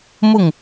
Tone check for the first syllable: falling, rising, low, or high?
falling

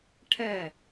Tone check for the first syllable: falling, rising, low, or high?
falling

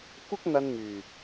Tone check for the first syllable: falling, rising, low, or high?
high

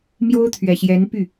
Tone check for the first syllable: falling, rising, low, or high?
high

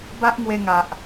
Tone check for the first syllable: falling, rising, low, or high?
high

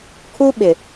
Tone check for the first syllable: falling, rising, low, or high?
high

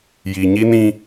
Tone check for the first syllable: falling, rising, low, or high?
low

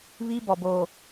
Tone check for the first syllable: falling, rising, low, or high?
high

